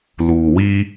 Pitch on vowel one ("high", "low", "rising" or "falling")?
low